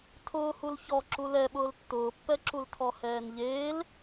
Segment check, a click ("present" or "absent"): present